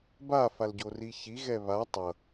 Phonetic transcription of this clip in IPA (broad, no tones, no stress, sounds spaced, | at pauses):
b a f a l ɟ o r i ç i ɣ ɛ β a tˤ ʌ